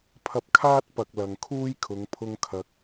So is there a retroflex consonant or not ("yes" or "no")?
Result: no